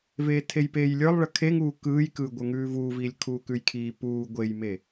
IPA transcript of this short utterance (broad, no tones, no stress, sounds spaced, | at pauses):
v eː tʰ e j p eː j lʲ ə˞ lˠ ɭ ə kʰ e ŋ uː k ɯː j k ɯː ɡʷ ə˞ ŋ ʉː v uː v iː lʲ kʰ uː k ʉ j kʰ iː p uː ɡʷ e j m e